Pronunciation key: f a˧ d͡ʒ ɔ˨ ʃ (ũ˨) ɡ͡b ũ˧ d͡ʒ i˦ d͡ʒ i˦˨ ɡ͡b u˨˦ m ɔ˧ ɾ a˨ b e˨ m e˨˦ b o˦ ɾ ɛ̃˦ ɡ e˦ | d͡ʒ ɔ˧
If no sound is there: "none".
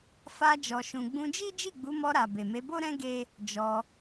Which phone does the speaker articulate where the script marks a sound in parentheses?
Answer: ũ˨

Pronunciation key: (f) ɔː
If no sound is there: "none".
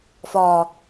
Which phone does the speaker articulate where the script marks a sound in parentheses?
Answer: f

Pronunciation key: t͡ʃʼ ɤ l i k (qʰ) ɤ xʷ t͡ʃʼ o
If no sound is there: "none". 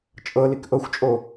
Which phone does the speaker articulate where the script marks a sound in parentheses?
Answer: ʔ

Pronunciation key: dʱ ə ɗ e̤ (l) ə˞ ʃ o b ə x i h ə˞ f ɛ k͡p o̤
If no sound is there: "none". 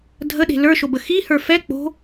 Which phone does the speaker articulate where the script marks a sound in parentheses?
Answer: l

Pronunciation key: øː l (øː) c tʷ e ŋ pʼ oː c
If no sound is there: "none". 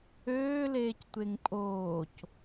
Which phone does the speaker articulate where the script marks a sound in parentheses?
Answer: eː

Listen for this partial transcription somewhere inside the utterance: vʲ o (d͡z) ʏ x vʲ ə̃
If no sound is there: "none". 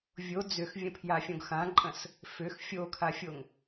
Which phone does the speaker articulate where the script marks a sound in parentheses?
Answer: d͡z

